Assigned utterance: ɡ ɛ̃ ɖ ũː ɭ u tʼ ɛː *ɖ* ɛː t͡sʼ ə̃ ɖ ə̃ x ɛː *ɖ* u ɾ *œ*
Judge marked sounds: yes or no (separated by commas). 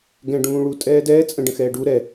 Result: no, yes, no